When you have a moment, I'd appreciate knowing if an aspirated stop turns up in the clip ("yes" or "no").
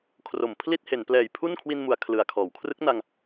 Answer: yes